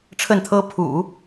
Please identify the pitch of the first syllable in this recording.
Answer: falling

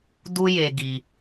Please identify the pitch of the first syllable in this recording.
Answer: high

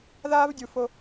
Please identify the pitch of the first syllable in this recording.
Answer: high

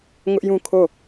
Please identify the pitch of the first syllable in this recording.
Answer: high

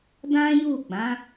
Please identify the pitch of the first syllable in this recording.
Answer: high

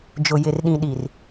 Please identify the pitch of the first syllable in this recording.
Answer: low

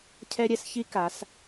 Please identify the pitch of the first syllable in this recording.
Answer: high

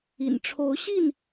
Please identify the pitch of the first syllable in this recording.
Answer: low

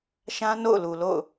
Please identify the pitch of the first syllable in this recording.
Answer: high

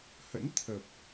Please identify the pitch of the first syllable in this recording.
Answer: rising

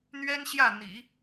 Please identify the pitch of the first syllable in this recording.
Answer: high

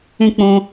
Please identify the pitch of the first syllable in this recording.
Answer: high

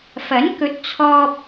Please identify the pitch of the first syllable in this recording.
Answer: rising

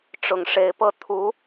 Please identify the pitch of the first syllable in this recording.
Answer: low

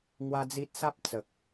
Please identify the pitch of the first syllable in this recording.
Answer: high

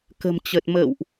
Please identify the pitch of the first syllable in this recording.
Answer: low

